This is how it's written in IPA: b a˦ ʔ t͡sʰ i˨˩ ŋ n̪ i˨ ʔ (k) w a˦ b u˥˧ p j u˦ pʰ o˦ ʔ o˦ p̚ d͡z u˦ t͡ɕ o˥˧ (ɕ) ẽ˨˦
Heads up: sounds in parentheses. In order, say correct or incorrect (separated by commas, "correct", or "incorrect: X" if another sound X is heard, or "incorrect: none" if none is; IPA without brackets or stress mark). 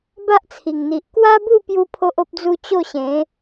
correct, correct